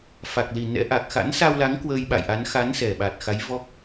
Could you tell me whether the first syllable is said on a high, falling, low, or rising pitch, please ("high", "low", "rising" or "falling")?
low